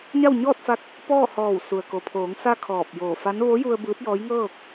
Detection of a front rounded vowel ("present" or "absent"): absent